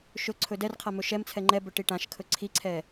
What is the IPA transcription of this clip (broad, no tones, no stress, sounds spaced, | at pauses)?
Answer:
ʃ ɵ ǀʰ ɵ d ɛ r qʰ a m ɵ ʃ ɛ m t͡sʰ ɛ ŋ͡ǃ ɛ b ɵ ʈ i ʈ ã ʃ kʰ ɵ ǀʰ i ǀʰ ɛ